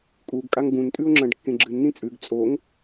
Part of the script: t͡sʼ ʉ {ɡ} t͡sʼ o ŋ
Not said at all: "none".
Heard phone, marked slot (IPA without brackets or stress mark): ɡ